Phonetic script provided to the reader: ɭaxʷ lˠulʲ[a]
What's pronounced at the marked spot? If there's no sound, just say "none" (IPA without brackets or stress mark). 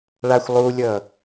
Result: ʌ